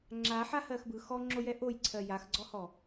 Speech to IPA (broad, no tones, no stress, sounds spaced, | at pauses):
ŋ͡ǁ a ħ a h ɜ x b ɯ x ɔ ŋ͡ǁ o j ɛ ʔ o j ǀʰ ɜ j a x ɡ͡ǀ ɔ h ɔ